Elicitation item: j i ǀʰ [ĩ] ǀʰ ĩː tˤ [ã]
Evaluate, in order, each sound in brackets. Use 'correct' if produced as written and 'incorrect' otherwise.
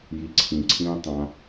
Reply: correct, correct

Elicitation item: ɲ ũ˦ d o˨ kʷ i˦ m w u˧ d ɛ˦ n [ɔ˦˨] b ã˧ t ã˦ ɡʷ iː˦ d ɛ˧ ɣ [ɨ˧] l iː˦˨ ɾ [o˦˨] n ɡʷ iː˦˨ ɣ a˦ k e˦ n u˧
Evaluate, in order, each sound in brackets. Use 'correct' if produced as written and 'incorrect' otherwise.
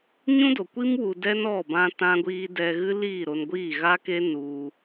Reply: correct, incorrect: ɨ˦, incorrect: o˧

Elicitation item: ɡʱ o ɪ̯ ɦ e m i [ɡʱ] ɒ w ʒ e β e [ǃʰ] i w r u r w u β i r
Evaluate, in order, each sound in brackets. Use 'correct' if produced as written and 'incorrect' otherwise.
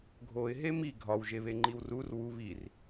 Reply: correct, incorrect: ŋ͡ǃ

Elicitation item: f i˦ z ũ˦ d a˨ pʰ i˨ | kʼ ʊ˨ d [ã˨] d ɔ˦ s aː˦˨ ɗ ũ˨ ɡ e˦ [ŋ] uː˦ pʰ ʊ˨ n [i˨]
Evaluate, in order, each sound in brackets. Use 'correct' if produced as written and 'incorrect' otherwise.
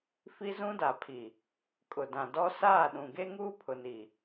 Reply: correct, correct, correct

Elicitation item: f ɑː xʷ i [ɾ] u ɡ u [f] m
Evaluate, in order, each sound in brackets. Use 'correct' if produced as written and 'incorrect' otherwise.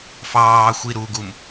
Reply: correct, incorrect: none

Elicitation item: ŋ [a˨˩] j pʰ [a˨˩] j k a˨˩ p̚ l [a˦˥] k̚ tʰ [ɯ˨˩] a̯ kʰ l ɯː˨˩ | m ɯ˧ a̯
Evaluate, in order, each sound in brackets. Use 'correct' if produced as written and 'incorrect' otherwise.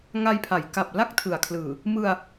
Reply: incorrect: a˧, incorrect: a˩˦, incorrect: a˥˩, correct

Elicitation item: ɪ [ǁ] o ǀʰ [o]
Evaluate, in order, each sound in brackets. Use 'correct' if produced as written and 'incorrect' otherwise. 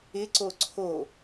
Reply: incorrect: ǀ, correct

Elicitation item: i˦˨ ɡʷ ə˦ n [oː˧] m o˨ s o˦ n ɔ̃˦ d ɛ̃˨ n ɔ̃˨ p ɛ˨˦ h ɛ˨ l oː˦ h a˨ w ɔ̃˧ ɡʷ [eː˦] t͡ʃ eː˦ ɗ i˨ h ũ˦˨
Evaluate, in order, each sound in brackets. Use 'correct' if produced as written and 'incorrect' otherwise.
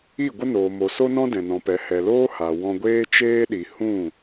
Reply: incorrect: oː˨, correct

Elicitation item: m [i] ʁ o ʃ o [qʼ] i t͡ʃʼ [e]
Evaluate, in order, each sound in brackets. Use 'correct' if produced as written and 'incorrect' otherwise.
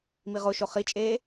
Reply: correct, incorrect: χ, incorrect: eː

